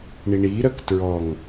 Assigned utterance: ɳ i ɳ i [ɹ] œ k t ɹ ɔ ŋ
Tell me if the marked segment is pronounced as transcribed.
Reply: no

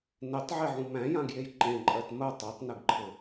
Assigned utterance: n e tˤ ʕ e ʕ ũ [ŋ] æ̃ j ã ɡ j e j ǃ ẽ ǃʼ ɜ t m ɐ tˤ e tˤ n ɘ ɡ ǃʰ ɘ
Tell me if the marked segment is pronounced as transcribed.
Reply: no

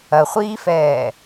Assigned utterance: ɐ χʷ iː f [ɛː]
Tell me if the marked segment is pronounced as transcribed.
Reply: yes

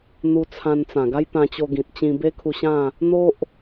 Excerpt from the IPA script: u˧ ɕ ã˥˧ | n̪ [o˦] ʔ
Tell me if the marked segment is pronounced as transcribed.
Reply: yes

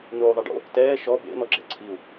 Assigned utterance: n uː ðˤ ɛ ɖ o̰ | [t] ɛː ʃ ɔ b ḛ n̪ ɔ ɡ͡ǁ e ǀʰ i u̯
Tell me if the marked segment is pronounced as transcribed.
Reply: yes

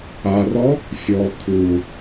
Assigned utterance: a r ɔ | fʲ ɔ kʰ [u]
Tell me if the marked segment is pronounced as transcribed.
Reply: yes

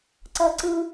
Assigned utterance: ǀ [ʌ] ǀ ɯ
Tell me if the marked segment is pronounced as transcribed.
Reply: yes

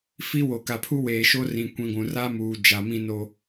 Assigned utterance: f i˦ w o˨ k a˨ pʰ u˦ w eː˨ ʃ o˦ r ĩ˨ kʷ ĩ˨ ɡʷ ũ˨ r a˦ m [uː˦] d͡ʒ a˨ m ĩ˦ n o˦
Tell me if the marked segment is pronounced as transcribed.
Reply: no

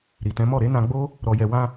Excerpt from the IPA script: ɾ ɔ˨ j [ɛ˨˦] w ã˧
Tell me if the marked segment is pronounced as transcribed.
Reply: no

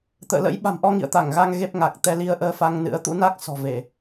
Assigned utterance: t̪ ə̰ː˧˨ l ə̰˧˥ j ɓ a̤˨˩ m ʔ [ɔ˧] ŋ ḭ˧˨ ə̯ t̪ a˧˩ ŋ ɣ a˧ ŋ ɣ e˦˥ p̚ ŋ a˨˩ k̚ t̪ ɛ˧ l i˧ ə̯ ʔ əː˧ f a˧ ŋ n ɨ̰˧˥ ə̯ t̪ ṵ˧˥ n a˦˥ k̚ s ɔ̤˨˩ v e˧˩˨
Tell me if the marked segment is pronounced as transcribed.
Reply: yes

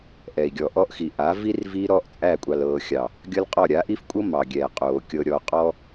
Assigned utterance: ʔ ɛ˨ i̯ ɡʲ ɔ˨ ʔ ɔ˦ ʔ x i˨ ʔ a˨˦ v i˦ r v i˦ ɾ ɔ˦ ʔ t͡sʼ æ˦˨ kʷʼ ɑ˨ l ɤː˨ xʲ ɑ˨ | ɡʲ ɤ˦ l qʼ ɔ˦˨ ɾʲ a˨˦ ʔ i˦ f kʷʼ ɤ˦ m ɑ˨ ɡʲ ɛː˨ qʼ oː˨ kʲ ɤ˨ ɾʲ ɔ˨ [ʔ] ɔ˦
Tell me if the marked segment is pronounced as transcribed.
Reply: no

